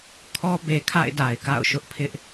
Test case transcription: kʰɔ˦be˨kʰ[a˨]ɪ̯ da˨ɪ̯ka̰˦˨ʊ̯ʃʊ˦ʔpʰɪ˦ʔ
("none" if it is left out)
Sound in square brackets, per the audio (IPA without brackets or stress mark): a̰˦˨